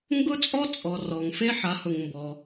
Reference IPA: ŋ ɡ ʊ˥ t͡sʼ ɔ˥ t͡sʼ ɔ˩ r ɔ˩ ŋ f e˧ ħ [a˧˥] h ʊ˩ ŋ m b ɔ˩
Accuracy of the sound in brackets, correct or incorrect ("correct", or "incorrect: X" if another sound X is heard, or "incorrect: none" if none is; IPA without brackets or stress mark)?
incorrect: a˩˧